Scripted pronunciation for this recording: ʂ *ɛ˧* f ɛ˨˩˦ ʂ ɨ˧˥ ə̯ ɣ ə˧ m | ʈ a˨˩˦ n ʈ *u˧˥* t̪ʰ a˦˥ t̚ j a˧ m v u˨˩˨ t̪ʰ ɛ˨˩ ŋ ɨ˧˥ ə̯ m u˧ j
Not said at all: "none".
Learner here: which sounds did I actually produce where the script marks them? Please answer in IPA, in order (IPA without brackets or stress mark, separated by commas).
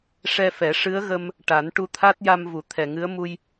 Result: ɛ˧, u˧